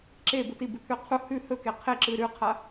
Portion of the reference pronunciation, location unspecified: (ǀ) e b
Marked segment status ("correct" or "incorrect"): incorrect